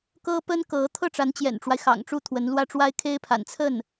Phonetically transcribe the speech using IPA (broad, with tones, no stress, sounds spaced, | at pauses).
k ɤ˥ p ə˥ n k ɤ˧˥ t̪ʰ ɤ˥˩ ʈ͡ʂ a˧˥ n t͡ɕ j ɛ̰˨˩ n ʈ͡ʂ w a˦ ɪ̯ x ɑ̰˨˩ ŋ ʈ͡ʂ u˥˩ t̪ʰ w ə˧˥ n l w ä˥˩ ʈ͡ʂ w a˥ ɪ̯ kʰ e˥ ɪ̯ pʰ a̰˨˩ n t͡sʰ ə˥˩ n